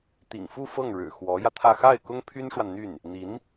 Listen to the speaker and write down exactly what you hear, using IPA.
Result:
t̪ ḭ˨˩ ŋ f u˥˧ f ɤ˥˩ ŋ ɻ ɻ̩˨˩ x w ɔ˧˥ j ä˧ t̪ʰ ä˥˧ x a˥˩ ɪ̯ k ʊ˥ ŋ pʰ y˥ n ʂ w a˨ n n̪ y˥˩ n | n̪ i˧˥ n

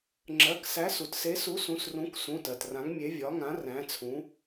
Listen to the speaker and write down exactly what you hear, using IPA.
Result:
ŋ͡ǁ ɜ˩˧˩ k s æ˨˥ s u˩ t s e˨˥ s u˨˥ s ũ˩˧˩ s r ũ˨˥ k s ũ˩˧˩ t ɜ˩ t r ã˨˥ ŋ mʲ e˨˥ vʲ ɒ˨˥ ŋ ã˨˥ r æ̃˨˥ t͡sʰ ũ˨˥

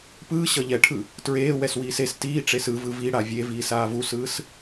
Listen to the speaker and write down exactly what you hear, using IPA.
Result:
p ɯː ɕ ʌ ʎ ɛ ʈʰ ɯ | t ɹ eː w ɛ s w iː s e s t iː ʈ͡ʂ e s ɯ v ɯ v i ɽ a vʲ e v iː s aː v u s ɯː s

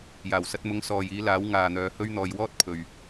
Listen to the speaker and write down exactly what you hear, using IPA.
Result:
j aː˨˩ w s ɐ˧ t̚ m ʊ˨˧ ŋ s ɔː˨ j iː˨˧ l aː˨˥ w ŋ aː˨ n̪ œː˨˧ h ɵ˥ ɥ n̪ ɔː˧ j w ɔː˥ t̚ pʰ ɵ˨ ɥ

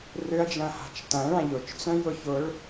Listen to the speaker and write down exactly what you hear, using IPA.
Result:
r ʏ ɐ̯ d͡ʒ ɐ̃ h a̤ t͡ʃ t ɐ̃ ɭ ã ʎ ʊ t͡ʃ t͡s œ̃ j ʊ ç ʊ ɭ

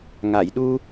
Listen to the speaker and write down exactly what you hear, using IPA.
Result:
ŋ a˨˩˨ j ɗ u˧

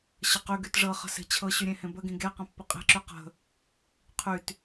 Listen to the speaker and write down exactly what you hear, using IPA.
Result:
ɕ ə q y ɡ y t ʐ ɤ χ ə̤ s e̤ t͡ɕʰ ɤ ɕ y ɾʲ ẽ h ẽ b ə ɡ ĩ ɡ e q ə̃ pː ə qʼ e̤ ǁ y q ə̤ | qʰ y t

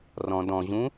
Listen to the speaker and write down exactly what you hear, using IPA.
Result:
r ɔ̃ d ɔ̃ ʑ ũ

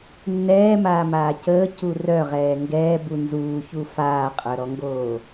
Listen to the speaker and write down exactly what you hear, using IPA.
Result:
nː ɛː m aː m aː c əː c u r œ ʁ ɛː ŋ ɡ ɛː b u n z uː ç u f aː qʼ œ ɾ ɔ ŋ ɡ oː

